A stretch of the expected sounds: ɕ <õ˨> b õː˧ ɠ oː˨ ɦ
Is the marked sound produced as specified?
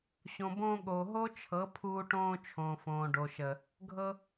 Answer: yes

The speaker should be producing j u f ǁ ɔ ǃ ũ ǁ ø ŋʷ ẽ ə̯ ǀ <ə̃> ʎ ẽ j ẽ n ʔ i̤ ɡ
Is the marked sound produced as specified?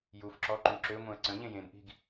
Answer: yes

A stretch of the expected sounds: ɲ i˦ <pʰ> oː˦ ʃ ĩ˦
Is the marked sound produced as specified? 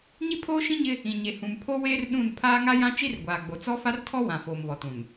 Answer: yes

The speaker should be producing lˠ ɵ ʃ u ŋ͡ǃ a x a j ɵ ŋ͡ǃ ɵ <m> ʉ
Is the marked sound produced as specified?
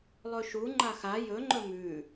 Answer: yes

